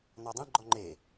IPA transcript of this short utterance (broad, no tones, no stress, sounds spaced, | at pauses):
n ɔ dˤ ĩ ɡ͡ǃ ɔ ŋ͡ǃ e